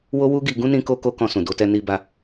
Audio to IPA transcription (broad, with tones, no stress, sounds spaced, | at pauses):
w o˦ w u˦ ɡ i˧ ɡ ũ˦ n ĩ˦ k o˦ k o˦ k ɔ̃˧ s ũ˨ d o˧ t ɛ˧ n i˧ b a˧